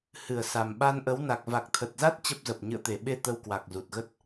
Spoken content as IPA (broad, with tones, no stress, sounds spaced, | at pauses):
h ɨ˧˩ ə̯ s a˨˩ m ɓ a˧ n ʔ ə˨˦ w n a˨˩ k̚ v a˨˩ k̚ t̪ʰ ə˨˩ t̚ z a˦˥ t̚ t͡ɕ ə˦˥ p̚ z ə˨˩ p̚ ɲ ɨ̰˧˨ ə̯ t̪ e˧˩ ɓ e˧ t̪ ə˧ w k w a˨˩ k̚ z u˨˩ t̚ ɣ ə˦˥ t̚